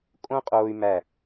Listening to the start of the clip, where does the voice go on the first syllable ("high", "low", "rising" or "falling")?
high